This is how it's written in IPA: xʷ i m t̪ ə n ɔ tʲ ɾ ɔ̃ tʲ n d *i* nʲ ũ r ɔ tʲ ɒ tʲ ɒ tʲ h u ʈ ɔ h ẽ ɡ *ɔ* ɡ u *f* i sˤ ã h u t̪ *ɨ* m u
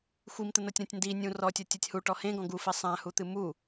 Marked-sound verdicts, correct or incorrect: correct, incorrect: ɔ̃, correct, correct

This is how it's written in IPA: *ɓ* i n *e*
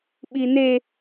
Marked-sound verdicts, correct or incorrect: correct, correct

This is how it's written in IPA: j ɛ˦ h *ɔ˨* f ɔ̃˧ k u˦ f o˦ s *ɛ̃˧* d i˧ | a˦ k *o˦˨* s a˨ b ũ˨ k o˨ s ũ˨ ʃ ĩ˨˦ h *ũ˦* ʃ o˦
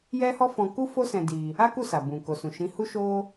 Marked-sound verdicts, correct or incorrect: incorrect: ɔ˦, correct, incorrect: u˦˨, incorrect: u˦

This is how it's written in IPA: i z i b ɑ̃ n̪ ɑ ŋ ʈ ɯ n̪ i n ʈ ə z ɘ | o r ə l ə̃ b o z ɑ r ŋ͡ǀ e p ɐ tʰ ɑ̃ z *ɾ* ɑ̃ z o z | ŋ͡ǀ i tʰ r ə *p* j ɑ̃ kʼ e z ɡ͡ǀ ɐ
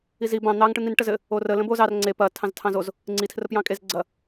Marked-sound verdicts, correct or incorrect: incorrect: tʰ, correct

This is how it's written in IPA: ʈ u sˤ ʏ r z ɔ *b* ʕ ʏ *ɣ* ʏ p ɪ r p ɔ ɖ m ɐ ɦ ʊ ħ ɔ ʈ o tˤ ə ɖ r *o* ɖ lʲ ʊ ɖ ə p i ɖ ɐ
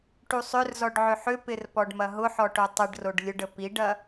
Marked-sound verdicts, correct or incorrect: incorrect: ɖ, incorrect: ħ, correct

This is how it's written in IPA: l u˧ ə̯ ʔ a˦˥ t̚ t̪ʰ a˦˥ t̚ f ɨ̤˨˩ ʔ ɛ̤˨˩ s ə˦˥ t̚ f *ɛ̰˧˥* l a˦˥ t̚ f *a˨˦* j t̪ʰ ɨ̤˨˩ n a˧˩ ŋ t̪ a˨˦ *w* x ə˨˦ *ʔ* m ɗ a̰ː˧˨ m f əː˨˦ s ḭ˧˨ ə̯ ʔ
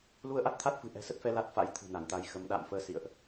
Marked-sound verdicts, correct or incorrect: incorrect: ɛ˨˦, incorrect: a̰˧˥, incorrect: j, incorrect: none

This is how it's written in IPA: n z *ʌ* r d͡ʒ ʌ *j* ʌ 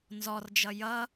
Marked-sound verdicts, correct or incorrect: incorrect: ɔ, correct

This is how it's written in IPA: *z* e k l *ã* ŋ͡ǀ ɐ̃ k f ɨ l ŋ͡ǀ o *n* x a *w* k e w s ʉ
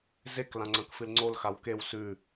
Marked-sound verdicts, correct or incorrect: correct, correct, incorrect: l, correct

